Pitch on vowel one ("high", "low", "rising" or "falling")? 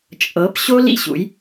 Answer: rising